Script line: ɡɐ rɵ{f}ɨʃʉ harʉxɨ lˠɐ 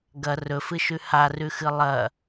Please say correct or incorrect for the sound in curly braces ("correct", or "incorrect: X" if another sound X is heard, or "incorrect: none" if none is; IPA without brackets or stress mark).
correct